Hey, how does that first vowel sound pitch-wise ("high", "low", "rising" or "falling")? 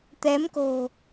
rising